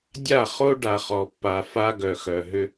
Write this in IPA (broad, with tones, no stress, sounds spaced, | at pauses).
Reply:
dʲ a˦˨ χ o˦ ɖ a˨ χ ɔ˨ pː a˨ f a˦ ɡ œ˨ x œ˨ ɦ ʏ˦